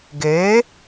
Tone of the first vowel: rising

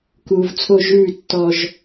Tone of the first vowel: low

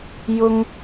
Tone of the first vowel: high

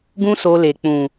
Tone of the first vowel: high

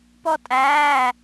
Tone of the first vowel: high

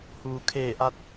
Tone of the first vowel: low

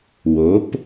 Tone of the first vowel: rising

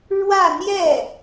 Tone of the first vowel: falling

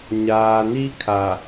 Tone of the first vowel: low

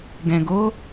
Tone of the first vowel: low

